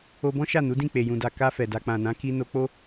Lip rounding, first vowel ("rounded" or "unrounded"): rounded